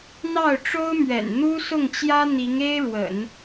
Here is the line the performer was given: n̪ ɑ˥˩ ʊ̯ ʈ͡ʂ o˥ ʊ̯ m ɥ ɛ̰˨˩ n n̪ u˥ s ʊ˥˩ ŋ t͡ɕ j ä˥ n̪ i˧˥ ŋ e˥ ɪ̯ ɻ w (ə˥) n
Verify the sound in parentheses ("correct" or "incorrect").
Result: incorrect